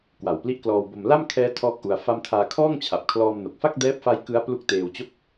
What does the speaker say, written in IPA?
k w a˨˩ w p l i˦˥ ʔ k l ɔː˧ w b o˧ m l a˥˩ m kʰ ɛː˦˥ tʰ ɔː˥˩ k̚ ʔ u˧ a̯ f a˥˩ m tʰ aː˧ kʰ ɔː˥˩ ŋ t͡ɕʰ a˨˩ p̚ kʰ l ɔː˧ m n o˨˩ k̚ f a˥˩ k̚ d ɛː˦˥ p̚ f a˦˥ j k ɯ˦˥ a̯ p l u˦˥ k̚ t eː˧ w t͡ɕ o˥˩ k̚

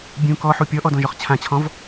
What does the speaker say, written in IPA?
bʲ ũ k ɔ ħ u pʲ ɔ ʔ ɔ d ɔ̃ ʒ ɔ χ t͡ɕʰ ã t͡ɕʰ ɔ̃ v

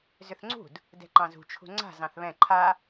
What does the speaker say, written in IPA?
z ʏ θ ŋ͡ǀ ṳ d | d ɛ̤ ǃ ɑ̃ z ṳ t͡ʃʰ ṳ ŋ͡ǀ a̤ z ɑ̃ θ β ɛ̃ ǃʰ a

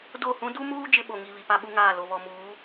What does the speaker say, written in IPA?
d o˦˨ h ũ˦ d u˦ m uː˦ d͡ʒ ɪ˦ ɓ o˨ ŋ i˨ β i˨ p a˦ ɓ u˦ ŋ aː˦˨ l o˨ β ɔ˨ m uː˨˦

